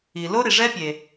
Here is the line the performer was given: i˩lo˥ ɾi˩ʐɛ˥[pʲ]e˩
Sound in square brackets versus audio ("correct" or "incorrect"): correct